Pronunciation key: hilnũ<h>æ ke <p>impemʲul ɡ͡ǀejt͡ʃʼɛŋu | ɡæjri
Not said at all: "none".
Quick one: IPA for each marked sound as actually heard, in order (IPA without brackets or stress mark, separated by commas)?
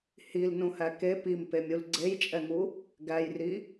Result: h, p